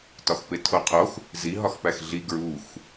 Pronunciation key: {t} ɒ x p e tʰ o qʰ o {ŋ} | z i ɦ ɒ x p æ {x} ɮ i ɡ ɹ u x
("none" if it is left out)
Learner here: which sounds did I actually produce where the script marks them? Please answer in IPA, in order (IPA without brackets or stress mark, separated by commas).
t, x, x